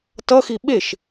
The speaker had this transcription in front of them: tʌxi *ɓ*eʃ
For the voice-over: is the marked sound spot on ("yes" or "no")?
yes